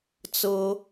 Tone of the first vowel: high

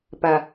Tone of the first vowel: low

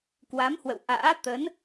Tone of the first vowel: rising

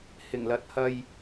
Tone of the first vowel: low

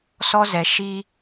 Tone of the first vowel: high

